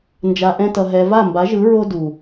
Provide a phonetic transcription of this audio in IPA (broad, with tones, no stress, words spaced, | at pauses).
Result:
nd͡ʒa˧ʔɛ̃˦tʌ˧ɦɛ˧ va˦˨mba˨˦ʒɯ˨˦ ɹo˦ du˨